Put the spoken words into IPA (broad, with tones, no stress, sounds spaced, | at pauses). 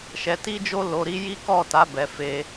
ʃ ɛ˧ t i˦ d͡ʒ o˦ l o˧ ɾ i˦ j i˦ k ɔ˦˨ t a˨˦ b ɛ˧ f e˧